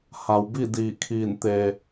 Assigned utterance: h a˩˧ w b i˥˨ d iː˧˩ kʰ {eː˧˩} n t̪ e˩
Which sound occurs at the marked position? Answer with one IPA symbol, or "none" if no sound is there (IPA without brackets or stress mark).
iː˧˩